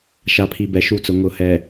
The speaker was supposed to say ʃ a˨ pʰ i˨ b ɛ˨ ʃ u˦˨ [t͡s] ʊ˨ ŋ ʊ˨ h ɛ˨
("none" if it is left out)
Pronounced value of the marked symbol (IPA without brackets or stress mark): t͡s